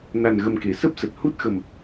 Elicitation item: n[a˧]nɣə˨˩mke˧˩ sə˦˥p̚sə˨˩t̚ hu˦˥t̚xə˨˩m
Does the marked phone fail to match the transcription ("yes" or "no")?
yes